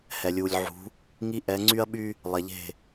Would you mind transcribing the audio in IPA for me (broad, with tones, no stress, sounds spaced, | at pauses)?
h ɛ˨ lʲ u˨ lʲ ʕ ṳ˨˦ | ŋ i˦ ʔ ɛ˨˦ ŋ͡ǀ y˦ ɐ̯ ɓ y˦ | lˠ ɛ˨ ʎ e̤˦˨